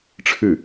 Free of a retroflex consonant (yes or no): no